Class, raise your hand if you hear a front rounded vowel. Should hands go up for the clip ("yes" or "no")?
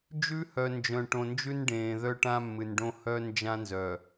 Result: yes